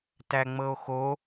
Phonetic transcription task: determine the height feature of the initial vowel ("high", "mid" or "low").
low